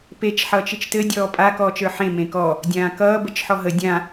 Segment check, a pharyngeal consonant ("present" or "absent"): present